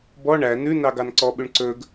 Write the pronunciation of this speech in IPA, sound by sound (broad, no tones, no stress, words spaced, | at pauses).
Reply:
bɔ ɳæ nʉnɑɡɑn ǀɔɓʉɳ ǀɵɡ